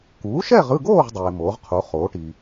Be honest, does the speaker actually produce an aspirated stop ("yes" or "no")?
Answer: yes